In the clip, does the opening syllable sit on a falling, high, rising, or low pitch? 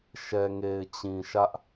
low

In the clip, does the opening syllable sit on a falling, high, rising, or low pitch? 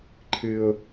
high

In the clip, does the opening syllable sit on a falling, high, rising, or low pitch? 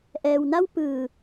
low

